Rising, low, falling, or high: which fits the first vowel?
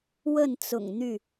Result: falling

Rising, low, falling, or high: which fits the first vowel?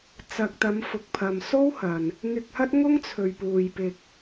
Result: low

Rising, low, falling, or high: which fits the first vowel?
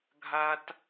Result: high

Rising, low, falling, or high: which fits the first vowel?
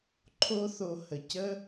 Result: high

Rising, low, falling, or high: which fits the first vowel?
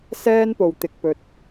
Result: high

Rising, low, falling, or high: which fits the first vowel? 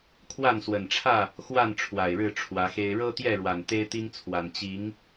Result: falling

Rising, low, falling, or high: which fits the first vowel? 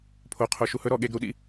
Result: low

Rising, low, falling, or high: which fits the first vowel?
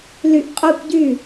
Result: rising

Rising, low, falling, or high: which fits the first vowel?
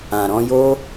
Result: low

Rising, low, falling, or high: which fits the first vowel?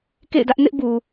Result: falling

